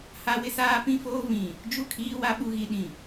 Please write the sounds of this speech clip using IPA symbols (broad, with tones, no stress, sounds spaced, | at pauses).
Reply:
h a˦ w ɪ˦ s aː˦ p ĩ˦ f oː˦ v ĩ˨ | d͡ʒ u˦˨ kʰ iː˦ w a˦ ɓ u˦ ɣ i˦ ɗ ĩ˨